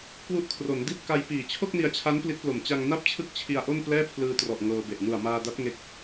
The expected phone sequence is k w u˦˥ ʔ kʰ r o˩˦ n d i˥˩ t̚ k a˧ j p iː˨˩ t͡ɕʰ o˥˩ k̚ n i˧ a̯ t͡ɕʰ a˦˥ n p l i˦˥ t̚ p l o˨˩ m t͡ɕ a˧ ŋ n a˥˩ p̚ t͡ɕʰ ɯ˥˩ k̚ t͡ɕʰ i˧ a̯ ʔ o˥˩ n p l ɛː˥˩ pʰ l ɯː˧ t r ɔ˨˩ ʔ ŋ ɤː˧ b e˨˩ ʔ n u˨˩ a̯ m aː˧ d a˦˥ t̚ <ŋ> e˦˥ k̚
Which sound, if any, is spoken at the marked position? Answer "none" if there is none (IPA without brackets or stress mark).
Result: ŋ